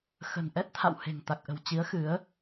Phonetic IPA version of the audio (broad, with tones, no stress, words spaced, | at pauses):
xə̤˨˩nʔɛ˦˥t̚t̪ʰa̰˧˨w he̤˨˩ŋt̪a˨˩k̚ʔə̤˨˩w t͡ɕi˨˦ə̯xɨ˨˦ə̯